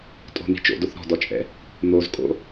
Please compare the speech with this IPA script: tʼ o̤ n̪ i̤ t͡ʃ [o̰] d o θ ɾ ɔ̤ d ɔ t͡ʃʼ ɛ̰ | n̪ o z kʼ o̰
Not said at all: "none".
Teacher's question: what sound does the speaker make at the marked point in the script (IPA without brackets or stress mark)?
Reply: o̰